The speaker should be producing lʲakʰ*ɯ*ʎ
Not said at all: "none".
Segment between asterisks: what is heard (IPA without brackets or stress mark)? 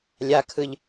ɯ